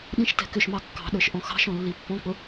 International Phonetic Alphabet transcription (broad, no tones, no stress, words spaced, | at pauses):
ɗĩʃtɛ̤kʏʃmɑ kːɑ̤ɗə˞ʃ ʔɔ̃xɑ̤ʃɔ̃ lːipːɔ̃k͡pʊ